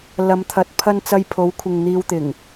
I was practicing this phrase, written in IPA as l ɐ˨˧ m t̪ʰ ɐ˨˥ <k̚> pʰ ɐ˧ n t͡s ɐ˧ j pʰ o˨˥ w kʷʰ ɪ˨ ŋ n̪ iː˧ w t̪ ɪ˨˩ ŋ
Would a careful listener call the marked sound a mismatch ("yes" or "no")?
yes